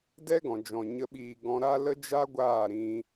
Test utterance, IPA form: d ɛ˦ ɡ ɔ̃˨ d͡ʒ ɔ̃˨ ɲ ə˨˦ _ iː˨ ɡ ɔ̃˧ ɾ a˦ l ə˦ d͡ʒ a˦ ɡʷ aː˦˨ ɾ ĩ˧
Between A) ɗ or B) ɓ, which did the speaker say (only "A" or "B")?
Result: B